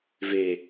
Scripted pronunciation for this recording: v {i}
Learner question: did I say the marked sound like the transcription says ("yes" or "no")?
no